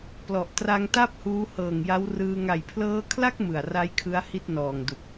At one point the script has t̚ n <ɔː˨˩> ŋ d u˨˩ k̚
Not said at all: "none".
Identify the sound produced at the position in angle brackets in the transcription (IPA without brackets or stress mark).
ɔː˨˩